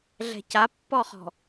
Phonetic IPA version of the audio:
ɮ ɛ̤ c a pː ɔ χ ɔ̤

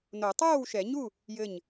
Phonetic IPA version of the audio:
n o˨˩˦ tˤ oː˥˨ w ʃ ɛ˨˩˦ ɲ u˥˨ | j ɘ˧˩ ɲ

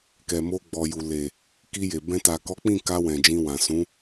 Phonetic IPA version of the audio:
k ɛ˨ m o˧ ɡ͡b ɔ˨ j u˨ l e˨ | k i˧ j e˨ b ɛ̃˧ t a˨ k ɔ˨˦ k͡p ĩ˦˨ k a˧ w ɛ̃˨ d͡ʒ ĩ˧ w ã˨ s ũ˨˦

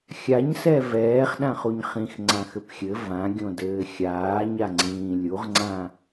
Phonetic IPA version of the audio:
xʲ a ɲ s ɛ v ɛː χ ɗ ã χ u ɲ χ ĩ x ŋ͡ǀ ã x ɘ p xʲ ɘ v ã ɡʲ õ d ɘː xʲ aː ɲ a ŋ͡ǀ ĩː lʲ u ʁ ŋ͡ǀ ã

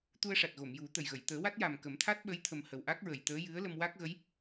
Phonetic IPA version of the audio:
t̪ u˧ ə̯ ʂ a˨˩ t̚ ɣ o˨˩˨ m j u˨˩˦ t̪ ə˨˩ j ɣ ə˨˩˨ j t̪ əː˨˩˦ w a˦˥ t̚ j a˨˩ m k ə˨˩˦ m t̪ʰ a˦˥ t̚ ɓ ə˧˥ j t̪ʰ ə˨˩ m h ə˨˩ w ʔ a˦˥ k̚ ɹ ə˨˩˨ j t̪ əː˧˥ j ɨ˧˥ ə̯ l ə˧ m w a˦˥ k̚ ɣ ə˧˥ j

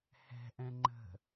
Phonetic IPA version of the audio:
h ɛ̤ ʔ ɛ̃ ŋ͡ǃ ə̤

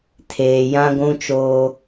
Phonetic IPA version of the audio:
tʰ eː˨ j ã˦ ɡʷ ũ˦ t͡ʃ oː˦

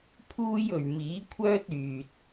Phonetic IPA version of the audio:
pʰ uː˥ j ɵ˨ ɥ m iː˨˥ kʷʰ œː˥ t̚ yː˨ t̚

